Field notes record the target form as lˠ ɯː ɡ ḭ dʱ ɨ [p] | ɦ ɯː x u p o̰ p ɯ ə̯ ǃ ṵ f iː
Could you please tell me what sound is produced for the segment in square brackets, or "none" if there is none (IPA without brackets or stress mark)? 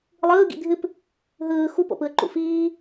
p